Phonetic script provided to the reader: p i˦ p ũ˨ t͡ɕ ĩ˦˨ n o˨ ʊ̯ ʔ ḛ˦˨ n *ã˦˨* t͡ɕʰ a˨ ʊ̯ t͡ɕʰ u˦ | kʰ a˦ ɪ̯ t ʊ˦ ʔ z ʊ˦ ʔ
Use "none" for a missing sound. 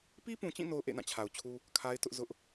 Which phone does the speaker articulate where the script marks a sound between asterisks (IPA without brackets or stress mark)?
ã˦˨